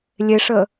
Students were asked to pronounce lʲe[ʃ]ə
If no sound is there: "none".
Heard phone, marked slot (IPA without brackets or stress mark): ʂ